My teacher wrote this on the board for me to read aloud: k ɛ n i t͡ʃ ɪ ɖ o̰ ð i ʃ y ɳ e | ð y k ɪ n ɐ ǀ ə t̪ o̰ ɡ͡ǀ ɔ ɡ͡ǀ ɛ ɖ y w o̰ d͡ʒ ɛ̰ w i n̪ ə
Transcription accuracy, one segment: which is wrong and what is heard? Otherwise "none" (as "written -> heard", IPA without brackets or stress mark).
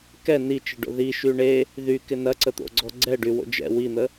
none